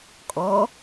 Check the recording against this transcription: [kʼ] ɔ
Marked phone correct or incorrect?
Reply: correct